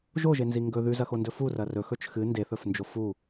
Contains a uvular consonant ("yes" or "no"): no